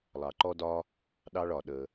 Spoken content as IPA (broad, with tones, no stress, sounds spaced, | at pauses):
lˠ ɑ˩ ǃ ɔ˧ d ɒ˧ | ɗ ɑ˧ ɭ ɒ˩ ɗ ə˩